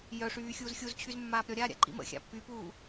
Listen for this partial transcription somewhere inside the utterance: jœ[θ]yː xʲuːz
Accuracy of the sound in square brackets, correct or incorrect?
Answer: incorrect: ʂ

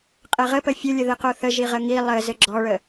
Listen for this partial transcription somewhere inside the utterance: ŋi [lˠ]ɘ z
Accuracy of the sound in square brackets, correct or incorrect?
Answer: correct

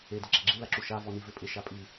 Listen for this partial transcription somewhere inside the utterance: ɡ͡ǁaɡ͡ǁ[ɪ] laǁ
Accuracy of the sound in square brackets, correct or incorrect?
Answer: incorrect: i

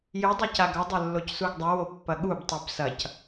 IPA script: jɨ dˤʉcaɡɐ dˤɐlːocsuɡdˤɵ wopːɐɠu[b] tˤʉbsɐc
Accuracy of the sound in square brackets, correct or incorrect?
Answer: correct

